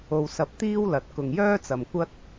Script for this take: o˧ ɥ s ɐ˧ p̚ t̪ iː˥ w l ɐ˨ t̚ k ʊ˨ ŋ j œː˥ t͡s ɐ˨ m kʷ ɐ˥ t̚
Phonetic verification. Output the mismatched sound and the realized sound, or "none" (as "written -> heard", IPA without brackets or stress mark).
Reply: ɥ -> w